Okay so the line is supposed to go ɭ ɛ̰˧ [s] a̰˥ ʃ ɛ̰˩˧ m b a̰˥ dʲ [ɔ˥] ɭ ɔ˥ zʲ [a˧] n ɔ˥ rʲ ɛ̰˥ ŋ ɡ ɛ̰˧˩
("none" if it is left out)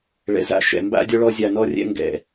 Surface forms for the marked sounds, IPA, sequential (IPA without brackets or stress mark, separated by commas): z, ɔ˥, a˧